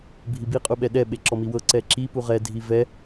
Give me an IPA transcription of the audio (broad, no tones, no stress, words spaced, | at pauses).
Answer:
bʱibi qʼuɓɛɗɛ ɓeǁɔmiwɤ ǀɛǁi puʁɛ dʱivɛ